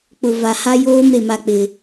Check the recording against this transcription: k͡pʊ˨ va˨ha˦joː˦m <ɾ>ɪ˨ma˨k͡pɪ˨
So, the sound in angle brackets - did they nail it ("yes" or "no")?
yes